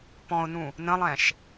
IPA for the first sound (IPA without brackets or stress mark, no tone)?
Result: p